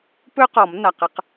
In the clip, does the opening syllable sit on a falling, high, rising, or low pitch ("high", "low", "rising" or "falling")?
high